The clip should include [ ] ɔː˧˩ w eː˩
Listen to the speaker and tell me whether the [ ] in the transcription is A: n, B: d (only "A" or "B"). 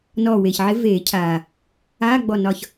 A